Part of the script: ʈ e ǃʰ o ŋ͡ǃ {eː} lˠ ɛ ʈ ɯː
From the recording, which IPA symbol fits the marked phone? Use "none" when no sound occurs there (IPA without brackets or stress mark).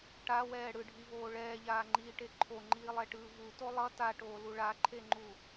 iː